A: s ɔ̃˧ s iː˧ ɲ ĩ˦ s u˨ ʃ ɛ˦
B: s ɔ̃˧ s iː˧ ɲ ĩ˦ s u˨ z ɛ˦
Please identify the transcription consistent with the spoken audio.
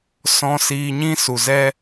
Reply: B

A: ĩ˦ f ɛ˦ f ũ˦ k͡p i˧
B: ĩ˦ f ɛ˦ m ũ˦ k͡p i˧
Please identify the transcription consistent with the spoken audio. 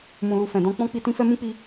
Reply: B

